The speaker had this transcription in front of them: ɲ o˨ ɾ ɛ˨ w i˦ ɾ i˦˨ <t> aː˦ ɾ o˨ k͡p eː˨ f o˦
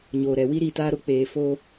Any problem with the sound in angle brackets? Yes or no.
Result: no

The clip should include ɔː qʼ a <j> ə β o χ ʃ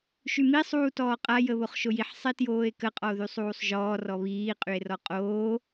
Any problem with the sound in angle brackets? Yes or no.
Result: no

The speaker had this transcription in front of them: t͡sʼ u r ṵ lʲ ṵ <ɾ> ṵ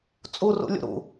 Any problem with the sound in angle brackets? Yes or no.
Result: no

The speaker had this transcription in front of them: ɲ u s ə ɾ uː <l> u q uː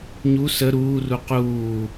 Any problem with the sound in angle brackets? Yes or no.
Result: yes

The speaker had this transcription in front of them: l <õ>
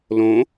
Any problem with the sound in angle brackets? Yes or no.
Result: no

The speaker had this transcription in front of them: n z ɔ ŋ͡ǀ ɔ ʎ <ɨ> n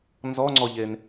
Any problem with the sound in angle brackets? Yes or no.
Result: yes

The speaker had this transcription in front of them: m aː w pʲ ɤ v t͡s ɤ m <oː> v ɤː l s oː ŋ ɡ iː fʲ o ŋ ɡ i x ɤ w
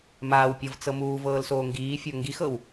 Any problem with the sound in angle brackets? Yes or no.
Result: yes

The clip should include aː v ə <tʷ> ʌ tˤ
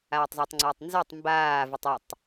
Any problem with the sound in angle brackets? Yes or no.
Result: yes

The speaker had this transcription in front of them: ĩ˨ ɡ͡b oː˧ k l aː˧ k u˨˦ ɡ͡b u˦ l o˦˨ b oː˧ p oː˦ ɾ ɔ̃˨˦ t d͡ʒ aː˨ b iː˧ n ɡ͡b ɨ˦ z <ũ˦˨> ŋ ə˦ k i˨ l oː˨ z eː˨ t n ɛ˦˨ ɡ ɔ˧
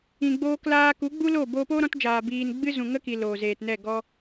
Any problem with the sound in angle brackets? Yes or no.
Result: yes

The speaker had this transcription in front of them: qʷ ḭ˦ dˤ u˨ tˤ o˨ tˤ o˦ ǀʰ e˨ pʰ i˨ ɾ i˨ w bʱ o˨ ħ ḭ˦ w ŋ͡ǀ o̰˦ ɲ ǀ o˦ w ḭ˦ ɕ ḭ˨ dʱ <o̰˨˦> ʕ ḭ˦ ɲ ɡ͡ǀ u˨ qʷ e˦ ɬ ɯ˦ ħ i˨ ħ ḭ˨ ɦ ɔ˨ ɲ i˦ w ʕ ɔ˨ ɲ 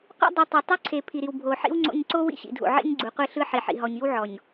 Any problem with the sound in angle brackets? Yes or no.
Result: yes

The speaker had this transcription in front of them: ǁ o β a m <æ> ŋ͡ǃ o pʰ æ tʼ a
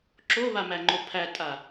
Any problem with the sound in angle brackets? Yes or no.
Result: no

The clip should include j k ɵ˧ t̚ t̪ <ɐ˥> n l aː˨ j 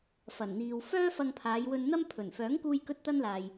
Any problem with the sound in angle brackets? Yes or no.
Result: no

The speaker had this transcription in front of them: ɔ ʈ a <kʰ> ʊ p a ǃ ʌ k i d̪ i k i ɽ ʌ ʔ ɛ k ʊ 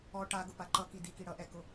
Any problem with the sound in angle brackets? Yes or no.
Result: yes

